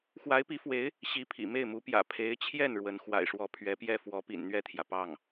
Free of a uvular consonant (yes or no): yes